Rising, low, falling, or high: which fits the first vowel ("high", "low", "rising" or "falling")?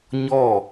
falling